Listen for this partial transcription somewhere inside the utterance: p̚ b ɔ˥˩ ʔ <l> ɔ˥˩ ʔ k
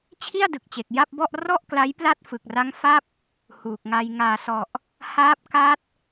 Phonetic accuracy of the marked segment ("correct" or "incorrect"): incorrect